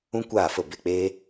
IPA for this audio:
ũ˦ kʷ aː˦˨ f ə˦˨ b e˦˨ k͡p eː˦

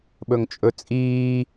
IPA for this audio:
ɓ ɵ ŋ t͡ʃʼ ɵ t͡sʼ iː

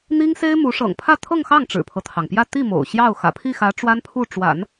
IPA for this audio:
n̪ i˥ ŋ s e˥ ɪ̯ m u˧˥ ʂ ɤ̰˨˩ ŋ pʰ ä˥˧ t̪ʰ ɤ˥˧ ŋ x ɑ˥˩ ŋ ʈ͡ʂ ɻ̩˨˩ pʰ ɤ˦ t̪ʰ ɑ˩ ŋ p j ä˥˧ t̪ i˥˩ m o̰˨˩ ʊ̯ ɕ j ɑ˥˩ ʊ̯ x ä̰˨˩ pʰ i˥˩ x ä˧˥ ʈ͡ʂ w a˥ n pʰ u˥˩ ʈ͡ʂ w a̰˨˩˦ n

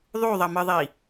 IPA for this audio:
ðˤ u ðˤ ʌ m ɯ ðˤ i

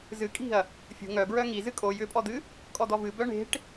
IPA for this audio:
z ɨ kʼ i̤ ɐ̯ | fʲ ṳ ŋ œ b ɹ œ ŋ i z ɨ kʼ o j ʏ pʼ ɔ d̪ ɨ | kʼ ɔ d̪ ɔ v ɨ b œ ɳ e̤ ʈ

